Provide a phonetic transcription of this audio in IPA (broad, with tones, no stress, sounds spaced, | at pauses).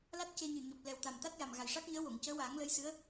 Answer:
l a˦˥ t̚ c e˧ ɲ ɨ˨˩ ɲ ɔ˨˩ p̚ l ɛ˨˩ w t̪ a˨˩ m t̪ a˦˥ t̚ j a˨˩ m ɣ a˨˩ j ʂ a˦˥ k̚ ɲ əː˧˥ w o˨˩˨ ŋ c əː˧˥ w aː˨˩˦ ŋ l ə˧˥ j s ɨ˧˥ ə̯